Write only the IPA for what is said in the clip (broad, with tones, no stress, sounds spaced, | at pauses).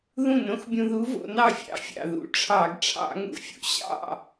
ð ũ˥˩ n õ˧˥ x bʲ ũ˧ ð u˧˥ v o̰˩˧ n ɑ˥˩ fʲ ɑ̰˧˩˧ fʲ ɑ̰˩ ð ṵ˩˧ ʈ͡ʂʰ ɑ˧˩˧ ɡ ʈ͡ʂʰ ɑ̰˧˩˧ ŋ ṵ˧˩˧ fʲ ṵ˧ ɕ ɑ̰˥˩